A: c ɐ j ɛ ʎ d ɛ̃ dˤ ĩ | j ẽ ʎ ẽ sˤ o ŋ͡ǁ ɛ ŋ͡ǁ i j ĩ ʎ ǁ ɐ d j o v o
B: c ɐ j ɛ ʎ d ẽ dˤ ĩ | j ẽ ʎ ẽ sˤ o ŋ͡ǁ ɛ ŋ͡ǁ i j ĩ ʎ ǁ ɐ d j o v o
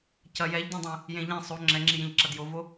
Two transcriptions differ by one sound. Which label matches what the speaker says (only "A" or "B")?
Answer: B